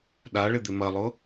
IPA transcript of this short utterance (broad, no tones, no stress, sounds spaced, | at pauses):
ɗ a ɭ ɪ d̪ ɪ m ɐ lˠ ʊ